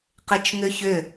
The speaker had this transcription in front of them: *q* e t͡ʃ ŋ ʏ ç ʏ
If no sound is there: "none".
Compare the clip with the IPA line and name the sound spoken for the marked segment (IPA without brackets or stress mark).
q